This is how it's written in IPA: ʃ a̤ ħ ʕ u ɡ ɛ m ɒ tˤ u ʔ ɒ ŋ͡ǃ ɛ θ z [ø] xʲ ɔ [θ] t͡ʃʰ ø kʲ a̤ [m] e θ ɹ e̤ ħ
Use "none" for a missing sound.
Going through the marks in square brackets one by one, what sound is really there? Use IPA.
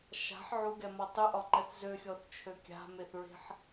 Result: ø, θ, m

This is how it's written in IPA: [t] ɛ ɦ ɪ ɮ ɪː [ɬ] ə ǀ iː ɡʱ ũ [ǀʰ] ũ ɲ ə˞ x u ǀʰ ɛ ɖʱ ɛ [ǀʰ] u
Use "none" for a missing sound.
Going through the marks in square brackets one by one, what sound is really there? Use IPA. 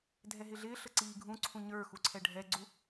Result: dʱ, ɬ, ǀʰ, ɡ͡ǀ

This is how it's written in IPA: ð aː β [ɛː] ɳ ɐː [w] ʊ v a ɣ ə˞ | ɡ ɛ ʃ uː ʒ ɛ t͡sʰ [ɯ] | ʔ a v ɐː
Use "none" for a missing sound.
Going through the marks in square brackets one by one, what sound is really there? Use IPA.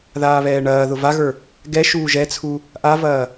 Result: ɛː, ð, u

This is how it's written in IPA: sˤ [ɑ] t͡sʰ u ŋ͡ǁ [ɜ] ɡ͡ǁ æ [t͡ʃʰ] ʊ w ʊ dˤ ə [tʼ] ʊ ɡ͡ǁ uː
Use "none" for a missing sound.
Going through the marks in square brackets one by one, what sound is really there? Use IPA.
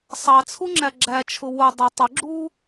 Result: ɑ, æ, t͡ʃʰ, tˤ

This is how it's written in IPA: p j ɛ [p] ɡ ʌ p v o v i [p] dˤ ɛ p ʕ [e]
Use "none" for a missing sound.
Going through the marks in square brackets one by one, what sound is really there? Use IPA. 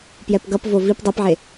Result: p, p, e

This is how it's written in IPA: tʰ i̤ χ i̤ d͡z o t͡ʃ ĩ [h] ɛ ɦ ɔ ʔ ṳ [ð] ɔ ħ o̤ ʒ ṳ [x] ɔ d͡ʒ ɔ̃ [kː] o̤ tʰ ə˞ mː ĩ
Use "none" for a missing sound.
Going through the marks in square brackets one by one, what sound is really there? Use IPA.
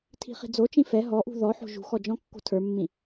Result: f, ð, x, kː

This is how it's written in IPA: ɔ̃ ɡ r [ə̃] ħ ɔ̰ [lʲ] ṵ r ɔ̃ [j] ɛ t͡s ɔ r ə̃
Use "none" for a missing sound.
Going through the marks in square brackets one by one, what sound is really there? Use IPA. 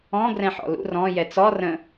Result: ɛ̃, l, j

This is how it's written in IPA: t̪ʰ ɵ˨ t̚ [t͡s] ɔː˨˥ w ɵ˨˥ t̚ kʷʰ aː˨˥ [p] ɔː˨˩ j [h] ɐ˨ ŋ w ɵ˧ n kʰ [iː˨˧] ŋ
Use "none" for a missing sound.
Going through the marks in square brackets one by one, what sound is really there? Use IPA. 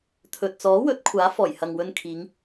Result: t͡s, f, h, iː˨˧

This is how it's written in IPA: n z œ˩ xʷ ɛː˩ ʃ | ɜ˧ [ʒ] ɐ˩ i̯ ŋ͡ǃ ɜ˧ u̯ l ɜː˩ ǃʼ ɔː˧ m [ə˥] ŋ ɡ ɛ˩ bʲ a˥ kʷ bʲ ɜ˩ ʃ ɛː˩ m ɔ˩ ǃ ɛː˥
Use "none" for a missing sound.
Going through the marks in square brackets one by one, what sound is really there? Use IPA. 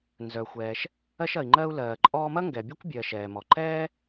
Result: ʃ, ɐ˥

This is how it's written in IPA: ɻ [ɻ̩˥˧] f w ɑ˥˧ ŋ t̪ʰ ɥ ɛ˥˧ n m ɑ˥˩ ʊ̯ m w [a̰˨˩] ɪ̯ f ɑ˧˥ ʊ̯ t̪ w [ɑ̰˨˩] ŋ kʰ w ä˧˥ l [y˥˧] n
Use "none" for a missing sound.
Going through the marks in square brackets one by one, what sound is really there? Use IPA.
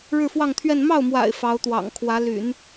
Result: ɻ̩˥˧, a̰˨˩, ɑ̰˨˩, y̰˨˩˦

